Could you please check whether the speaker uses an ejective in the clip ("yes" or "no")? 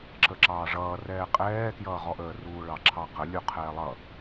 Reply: yes